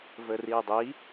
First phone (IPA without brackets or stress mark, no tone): v